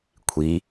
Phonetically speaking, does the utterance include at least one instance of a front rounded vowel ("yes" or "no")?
no